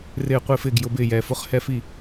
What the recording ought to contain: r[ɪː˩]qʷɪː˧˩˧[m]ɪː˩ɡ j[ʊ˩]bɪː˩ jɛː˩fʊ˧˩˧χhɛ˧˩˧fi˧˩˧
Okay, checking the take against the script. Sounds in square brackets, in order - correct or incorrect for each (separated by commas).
incorrect, incorrect, incorrect